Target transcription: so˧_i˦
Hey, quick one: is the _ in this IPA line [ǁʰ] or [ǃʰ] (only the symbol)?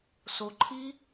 ǃʰ